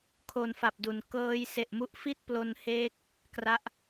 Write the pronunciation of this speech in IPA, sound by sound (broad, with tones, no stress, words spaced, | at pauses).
kʰo˧nfa˨˩p̚du˩˦n kɤː˦˥j se˨˩ʔmu˦˥ʔfi˥˩t̚ plo˧nheː˦˥k̚ | kra˦˥ʔ